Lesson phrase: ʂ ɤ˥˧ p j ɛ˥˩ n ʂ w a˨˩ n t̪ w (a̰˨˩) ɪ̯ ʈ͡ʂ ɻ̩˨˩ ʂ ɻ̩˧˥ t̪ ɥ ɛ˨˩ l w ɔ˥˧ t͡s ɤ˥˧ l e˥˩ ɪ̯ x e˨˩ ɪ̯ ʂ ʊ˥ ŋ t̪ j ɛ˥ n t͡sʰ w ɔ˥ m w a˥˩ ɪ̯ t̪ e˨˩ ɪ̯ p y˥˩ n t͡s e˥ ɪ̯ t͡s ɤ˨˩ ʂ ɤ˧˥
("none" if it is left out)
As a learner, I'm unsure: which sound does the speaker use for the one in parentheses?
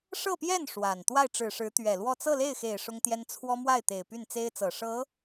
a˥˩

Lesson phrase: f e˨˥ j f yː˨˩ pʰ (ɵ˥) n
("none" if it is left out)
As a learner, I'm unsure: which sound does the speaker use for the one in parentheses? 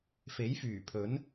ɵ˨˥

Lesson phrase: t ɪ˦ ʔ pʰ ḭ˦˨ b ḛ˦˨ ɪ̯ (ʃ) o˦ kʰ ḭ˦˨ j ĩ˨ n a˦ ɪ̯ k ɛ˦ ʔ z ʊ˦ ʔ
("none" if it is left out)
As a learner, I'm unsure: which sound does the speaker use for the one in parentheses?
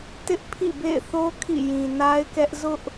θ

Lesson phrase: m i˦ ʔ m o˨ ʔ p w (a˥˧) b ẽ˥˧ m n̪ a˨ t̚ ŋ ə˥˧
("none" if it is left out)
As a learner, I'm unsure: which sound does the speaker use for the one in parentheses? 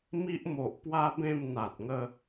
a˦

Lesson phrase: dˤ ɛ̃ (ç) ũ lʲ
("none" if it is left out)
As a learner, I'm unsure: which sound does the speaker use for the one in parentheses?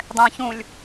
ç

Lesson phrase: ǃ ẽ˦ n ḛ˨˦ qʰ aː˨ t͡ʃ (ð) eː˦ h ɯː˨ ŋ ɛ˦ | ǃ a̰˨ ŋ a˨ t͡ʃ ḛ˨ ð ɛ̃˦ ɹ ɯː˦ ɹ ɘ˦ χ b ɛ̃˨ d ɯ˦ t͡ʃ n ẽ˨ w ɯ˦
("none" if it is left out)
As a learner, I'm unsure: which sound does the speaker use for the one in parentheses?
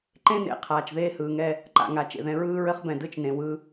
ð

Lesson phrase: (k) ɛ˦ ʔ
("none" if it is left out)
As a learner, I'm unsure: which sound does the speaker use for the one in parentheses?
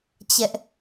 t͡ɕ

